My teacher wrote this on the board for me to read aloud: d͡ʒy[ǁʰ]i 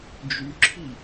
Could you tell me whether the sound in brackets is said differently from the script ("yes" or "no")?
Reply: no